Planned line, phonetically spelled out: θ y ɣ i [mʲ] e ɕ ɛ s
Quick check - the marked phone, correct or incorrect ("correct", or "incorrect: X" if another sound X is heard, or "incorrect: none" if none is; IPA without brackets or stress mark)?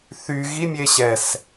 correct